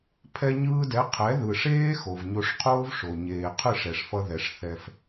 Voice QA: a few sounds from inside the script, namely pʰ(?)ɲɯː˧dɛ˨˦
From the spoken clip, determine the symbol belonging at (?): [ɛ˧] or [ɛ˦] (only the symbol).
ɛ˧